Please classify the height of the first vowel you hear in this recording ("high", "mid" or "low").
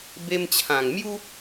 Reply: mid